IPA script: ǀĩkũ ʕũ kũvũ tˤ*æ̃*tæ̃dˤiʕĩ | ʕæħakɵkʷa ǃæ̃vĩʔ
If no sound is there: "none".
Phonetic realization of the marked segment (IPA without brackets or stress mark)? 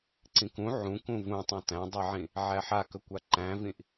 æ̃